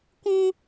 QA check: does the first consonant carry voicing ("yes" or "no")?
no